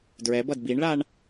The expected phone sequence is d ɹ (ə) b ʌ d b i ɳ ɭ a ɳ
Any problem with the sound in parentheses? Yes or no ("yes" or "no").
yes